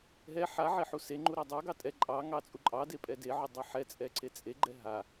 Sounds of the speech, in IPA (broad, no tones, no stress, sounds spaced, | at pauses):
ɦ ɛ ħ a ʕ e ħ u s e ŋ͡ǃ u ɾ a dˤ ɑ ɡ ɑ tʼ ɛ ǃʼ ɑ ŋ ɑ t͡sʼ u ǃʼ ɑ d e pʼ ɛ d e ʕ u dˤ ɑ ħ ɛ t͡sʼ ɛ ǀ e t͡sʼ e ɡ͡ǃ ɛ ɦ a